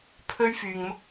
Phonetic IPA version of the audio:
pʰɵ˥ɥfyː˧ŋmʊ˥k̚

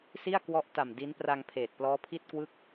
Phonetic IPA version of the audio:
si˥˩a̯kwɔ˦˥ʔta˨˩m di˦˥n pra˧ŋ pʰeː˨˩t̚plɔː˦˥pʰi˥˩t̚kwɯ˥˩k̚

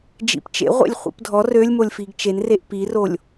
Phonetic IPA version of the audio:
d͡ʒḭpt͡ʃḛʁʷḛlʲ χʷḭpdʱɔ rølʲmolʲfiɡ t͡ʃenreʔ pirolʲ

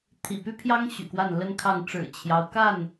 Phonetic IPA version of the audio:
t̪ʰḭ˨˩py˦pʰjɑ˦ŋ ɕy̰˨˩kwa˥˨nlə˦nkʰɑ˥˨ŋ ʈ͡ʂɻ̩˨˩t͡ɕʰjɑ˦ʊ̯ka˥˨n

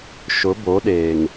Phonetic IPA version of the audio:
ʃʊ˨˦bo˨˦ɗeː˨ŋ

